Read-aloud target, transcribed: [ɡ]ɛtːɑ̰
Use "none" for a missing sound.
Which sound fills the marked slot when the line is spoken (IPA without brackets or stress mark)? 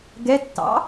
ɡ